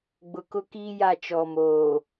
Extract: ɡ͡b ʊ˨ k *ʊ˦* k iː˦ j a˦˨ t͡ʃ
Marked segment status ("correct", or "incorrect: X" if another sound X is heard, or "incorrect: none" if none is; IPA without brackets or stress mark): correct